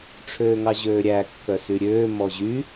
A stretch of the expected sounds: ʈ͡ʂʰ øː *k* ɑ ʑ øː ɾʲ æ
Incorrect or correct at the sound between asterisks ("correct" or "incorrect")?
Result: incorrect